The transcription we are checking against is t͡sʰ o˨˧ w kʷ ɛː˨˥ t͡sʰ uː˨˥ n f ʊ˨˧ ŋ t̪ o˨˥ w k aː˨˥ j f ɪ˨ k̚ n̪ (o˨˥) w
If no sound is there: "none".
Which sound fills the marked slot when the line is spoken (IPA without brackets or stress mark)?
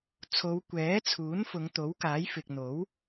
o˨˥